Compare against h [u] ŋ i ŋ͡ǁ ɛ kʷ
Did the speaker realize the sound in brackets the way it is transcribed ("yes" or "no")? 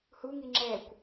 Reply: yes